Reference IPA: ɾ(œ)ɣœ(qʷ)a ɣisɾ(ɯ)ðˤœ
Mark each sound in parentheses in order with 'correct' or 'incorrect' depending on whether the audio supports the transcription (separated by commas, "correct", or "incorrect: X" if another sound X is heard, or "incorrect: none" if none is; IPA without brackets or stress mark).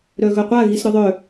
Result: correct, correct, incorrect: ʊ